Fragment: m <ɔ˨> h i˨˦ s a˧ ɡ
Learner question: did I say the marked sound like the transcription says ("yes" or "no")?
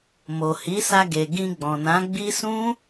no